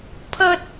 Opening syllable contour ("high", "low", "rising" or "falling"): high